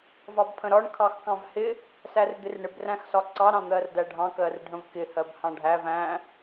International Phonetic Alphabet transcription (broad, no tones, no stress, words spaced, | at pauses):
vɑbpʰə̃ɾɒɳ kʰɑxkɑ̃vhɪ | særd̪ɪrɳɪb ræ̃xsɒǀɑ ɾɑ̃n̪ɜrdæɖʱɑ̃ kɜrɖʱə̃vkɪ hɜbhɑ̃ɖʱæv æ̃